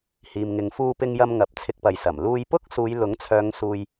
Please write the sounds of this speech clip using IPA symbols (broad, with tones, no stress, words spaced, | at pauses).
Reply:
hiː˨mŋɪ˨˧ŋ fuː˧pɪ˧ŋjɐ˧m ŋɐ˨p̚t͡sʰɪ˧k̚pɐ˨jsɐ˨˩m luː˧j pʊ˥k̚ suː˨˧j lʊ˨˥ŋt͡sʰœː˨˧ŋ suː˧j